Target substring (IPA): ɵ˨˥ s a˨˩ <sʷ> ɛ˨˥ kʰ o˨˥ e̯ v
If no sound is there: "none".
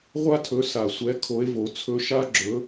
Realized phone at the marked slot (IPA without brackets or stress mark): sʷ